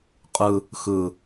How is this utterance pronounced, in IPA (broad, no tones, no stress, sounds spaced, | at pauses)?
qʼ ɯ | x ɯ